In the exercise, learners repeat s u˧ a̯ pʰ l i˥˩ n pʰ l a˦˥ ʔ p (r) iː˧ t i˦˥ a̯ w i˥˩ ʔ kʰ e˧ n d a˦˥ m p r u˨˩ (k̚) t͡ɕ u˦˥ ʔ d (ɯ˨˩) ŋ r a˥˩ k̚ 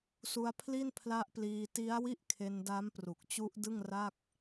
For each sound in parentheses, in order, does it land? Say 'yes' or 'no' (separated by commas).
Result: no, yes, no